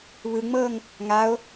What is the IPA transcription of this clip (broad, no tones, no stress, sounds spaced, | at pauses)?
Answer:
β ɯ ŋ͡m ɤː ŋ | ŋ a o̯